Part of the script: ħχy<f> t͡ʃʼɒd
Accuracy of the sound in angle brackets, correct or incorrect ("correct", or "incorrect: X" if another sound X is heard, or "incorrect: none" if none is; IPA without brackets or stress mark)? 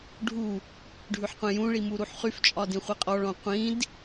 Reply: correct